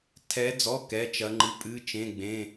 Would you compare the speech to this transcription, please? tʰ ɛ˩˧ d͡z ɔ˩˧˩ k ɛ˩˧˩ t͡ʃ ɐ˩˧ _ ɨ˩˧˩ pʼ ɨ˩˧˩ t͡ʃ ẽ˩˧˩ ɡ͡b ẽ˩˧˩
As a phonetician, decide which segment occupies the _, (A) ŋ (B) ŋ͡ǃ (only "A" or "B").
B